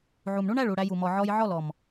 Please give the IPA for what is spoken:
ʕu˨mɳu˦ɳæ˦˨ɭu˨ ɽæ˧ju˨ mɔ˨ʕɔ˧jʕɔ˦˨lɔ˨m

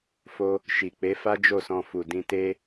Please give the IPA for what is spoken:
fo˧ | ʃi˨ k͡pe˨˦fa˦ d͡ʒo˦˨sɔ̃˧ fu˨dĩ˧te˦

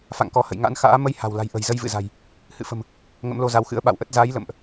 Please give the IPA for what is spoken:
fa̰˧˨ŋkɔ˨˦hə̰˧˨j ŋa̰˧˥nxa̰ː˧˥ mə˧j ha̤˨˩wla̤˨˩jʔə̤˨˩j zə˧jvɨ̰˧˨za̤˨˩j | hɨ̰˧˨fə̤˨˩m | ŋə̰˧˥mlo˧za˨˦wxɨ̰˧˥ə̯ ɓa̰˧˨wʔə˦˥t̚ za˨˦j lə̰˧˨mʔ

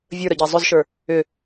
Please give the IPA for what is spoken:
vʲə˞ɾəɟæ zˤʏzʃə˞ | ʏ

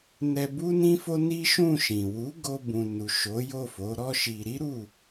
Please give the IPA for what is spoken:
nɛ˧bu˦nĩ˦fo˦ ni˦ʃũ˦˨ʃĩ˨ wu˨˦ ɡo˧bũ˨ nu˨ʃo˨˦ jo˦˨ fo˨˦ɾɔ˦ʃi˧ ɾi˦ ɾu˦˨

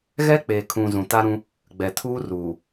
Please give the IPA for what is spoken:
ɣɛ˦k͡peː˨kʰũ˨ zũ˨ta˦ɾũ˦ | ɡ͡bɛ˨ tʰuː˦ruː˨

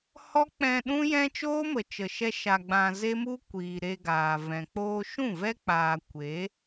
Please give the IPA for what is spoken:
hɔ˦k͡pɛ̃˧ ɗũ˦jɛ̃˦ t͡ʃoː˦mə˨t͡ʃə˨ʃɛ˧ ʃa˧ɡ͡bã˧ ze˦mu˦kʷiː˨ ɾe˧ɡaː˨vɛ̃˨ k͡poː˧ʃũ˦˨vɛ˦ k͡paː˨kʷe˨˦

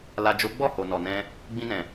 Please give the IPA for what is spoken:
la˨d͡ʒo˨˦ɡ͡bɔ˦˨ ho˨nɔ˨nɛ̃˧ | ɡ͡bĩ˧nɛ̃˨

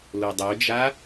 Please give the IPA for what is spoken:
lodˤod͡ʒa

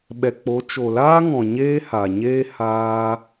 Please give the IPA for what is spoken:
ɓɛ˨k͡po˨˦ t͡ʃo˨laː˦ŋɔ̃˨ ɲeː˦ha˨ɲeː˦ haː˦

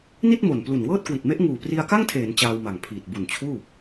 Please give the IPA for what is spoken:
ni˥˩t̚mo˨˩nplu˨˩n wɤː˥˩t̚kwi˨˩t̚me˦˥ʔ ŋuː˨˩pri˧a̯ka˥˩ŋtʰeː˩˦n t͡ɕaː˧wma˨˩ŋpʰiː˨˩t̚ bu˨˩nt͡ɕʰuː˥˩

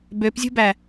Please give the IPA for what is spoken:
bøpzʲṳbæ

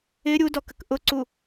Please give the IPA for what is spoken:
ɪ ɾʲudɔkək ʔʊǀu

